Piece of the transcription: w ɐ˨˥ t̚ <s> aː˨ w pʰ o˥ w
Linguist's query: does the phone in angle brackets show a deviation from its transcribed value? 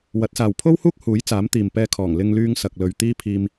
no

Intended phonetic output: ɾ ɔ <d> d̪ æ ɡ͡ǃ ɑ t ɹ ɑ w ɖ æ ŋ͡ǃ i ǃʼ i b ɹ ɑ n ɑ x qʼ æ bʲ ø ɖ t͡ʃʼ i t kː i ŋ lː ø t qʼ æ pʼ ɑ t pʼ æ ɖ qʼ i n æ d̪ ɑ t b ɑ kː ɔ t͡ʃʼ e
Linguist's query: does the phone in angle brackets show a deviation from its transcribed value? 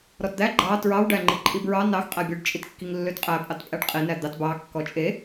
yes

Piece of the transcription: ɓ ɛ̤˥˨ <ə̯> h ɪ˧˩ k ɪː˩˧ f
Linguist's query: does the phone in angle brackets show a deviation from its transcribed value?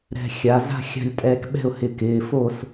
yes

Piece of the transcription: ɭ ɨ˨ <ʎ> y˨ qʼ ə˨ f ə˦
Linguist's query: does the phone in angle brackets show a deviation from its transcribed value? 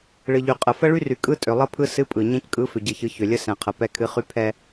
no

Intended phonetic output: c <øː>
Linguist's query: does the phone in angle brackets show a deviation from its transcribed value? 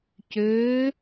no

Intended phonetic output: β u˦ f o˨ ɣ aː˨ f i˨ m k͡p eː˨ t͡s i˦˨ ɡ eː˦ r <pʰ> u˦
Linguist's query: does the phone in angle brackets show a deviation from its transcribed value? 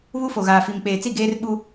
yes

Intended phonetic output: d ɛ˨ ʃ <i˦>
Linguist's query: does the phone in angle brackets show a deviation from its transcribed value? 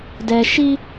no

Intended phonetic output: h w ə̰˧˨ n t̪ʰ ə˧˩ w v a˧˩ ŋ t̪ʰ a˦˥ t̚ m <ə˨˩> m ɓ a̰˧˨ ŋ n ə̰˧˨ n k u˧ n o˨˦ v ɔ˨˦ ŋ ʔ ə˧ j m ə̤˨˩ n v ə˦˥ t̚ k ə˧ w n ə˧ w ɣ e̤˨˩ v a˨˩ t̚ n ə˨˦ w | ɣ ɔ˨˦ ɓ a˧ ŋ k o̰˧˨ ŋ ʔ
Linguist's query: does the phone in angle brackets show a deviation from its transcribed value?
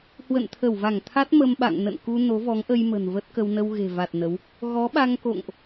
yes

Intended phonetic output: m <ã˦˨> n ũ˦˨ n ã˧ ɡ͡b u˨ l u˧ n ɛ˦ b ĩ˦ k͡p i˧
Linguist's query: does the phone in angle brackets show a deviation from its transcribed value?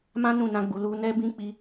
yes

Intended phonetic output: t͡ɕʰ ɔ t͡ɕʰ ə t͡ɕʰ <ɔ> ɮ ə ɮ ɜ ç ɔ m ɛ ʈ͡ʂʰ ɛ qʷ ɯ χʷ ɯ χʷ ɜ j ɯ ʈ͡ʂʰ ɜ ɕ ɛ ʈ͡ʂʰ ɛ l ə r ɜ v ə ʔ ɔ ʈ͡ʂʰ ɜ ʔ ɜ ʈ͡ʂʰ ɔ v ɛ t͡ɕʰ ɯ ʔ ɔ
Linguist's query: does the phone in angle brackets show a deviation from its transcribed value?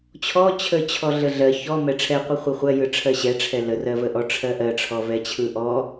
no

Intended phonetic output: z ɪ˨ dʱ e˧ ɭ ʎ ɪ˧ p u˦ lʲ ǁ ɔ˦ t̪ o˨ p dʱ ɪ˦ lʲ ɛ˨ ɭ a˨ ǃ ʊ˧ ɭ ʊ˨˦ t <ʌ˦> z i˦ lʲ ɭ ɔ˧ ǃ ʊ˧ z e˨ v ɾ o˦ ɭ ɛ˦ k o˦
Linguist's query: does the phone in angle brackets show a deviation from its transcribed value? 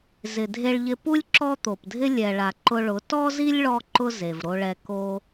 yes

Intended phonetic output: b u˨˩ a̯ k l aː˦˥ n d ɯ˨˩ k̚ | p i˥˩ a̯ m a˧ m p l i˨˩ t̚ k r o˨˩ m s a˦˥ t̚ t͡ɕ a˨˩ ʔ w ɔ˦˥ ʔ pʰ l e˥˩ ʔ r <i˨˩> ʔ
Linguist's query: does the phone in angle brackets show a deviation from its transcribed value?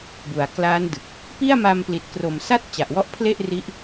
yes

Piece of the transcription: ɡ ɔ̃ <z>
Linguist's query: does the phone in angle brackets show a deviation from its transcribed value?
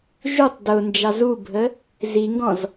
no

